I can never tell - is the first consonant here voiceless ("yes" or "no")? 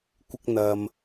yes